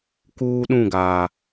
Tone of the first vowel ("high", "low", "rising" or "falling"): high